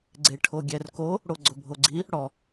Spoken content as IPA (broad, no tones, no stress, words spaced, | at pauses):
ɡ͡ǀeʈʰoɡʲɛrko | ɽoɡ͡ǀʊbʱoɡ͡ǀi | ɽɔ